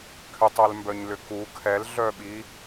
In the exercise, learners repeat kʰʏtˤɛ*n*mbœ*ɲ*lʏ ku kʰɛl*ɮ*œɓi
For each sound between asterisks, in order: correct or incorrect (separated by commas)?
incorrect, correct, correct